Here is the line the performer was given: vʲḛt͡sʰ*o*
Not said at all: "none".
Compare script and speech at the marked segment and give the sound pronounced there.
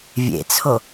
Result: o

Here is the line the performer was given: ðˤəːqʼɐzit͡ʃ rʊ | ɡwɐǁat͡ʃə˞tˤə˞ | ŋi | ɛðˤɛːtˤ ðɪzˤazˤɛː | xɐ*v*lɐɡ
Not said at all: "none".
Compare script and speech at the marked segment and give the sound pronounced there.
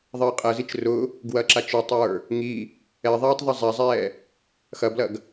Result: b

